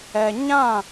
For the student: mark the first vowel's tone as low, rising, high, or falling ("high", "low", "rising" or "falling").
low